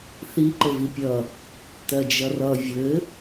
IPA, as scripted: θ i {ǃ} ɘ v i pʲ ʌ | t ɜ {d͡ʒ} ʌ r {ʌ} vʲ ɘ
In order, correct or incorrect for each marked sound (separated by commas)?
correct, correct, correct